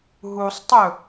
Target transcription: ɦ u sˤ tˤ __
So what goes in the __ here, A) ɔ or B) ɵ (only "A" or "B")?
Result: B